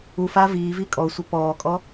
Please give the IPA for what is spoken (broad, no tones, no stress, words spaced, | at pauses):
ufa viːvi kʼɔsʷə pɔːkʼɔ